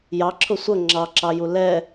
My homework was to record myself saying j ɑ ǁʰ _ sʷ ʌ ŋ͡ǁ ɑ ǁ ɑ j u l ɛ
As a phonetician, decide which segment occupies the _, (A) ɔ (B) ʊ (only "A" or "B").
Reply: B